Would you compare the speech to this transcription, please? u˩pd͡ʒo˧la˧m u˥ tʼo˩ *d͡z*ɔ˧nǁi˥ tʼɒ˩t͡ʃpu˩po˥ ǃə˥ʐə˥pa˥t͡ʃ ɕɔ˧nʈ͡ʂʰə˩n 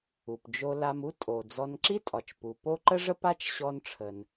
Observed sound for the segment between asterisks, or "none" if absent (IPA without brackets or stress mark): d͡z